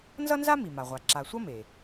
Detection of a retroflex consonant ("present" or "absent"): absent